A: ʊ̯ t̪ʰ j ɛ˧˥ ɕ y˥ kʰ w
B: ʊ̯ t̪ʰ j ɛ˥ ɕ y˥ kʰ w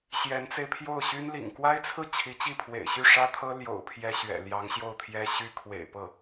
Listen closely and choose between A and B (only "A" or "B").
B